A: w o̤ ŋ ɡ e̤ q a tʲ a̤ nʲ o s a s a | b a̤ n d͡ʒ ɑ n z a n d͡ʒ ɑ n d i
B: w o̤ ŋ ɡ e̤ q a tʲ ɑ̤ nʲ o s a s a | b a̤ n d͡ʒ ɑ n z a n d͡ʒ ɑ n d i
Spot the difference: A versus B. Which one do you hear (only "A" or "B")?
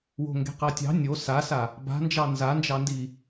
B